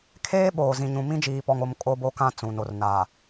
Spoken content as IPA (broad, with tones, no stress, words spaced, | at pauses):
kʰeː˦ ɓoː˨ zĩ˨ɲũ˨ mĩ˦d͡ʒiː˨pɔ˨ŋo˦˨m kʼo˦bo˦kã˦ t͡sũ˨no˨r naː˨